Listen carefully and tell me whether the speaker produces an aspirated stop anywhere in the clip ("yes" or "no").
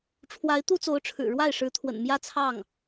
yes